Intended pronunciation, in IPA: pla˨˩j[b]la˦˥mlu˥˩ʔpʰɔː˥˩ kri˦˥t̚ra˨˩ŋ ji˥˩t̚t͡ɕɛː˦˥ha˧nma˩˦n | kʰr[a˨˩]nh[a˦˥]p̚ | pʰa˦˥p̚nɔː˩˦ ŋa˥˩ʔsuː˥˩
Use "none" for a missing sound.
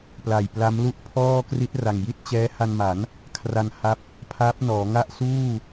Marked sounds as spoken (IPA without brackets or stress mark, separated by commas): p, a˧, a˦˥